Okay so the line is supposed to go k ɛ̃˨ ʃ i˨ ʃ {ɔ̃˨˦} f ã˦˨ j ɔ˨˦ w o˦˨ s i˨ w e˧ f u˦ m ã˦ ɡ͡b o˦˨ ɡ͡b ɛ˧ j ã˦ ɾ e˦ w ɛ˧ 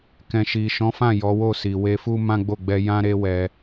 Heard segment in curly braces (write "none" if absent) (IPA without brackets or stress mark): ɔ̃˨˦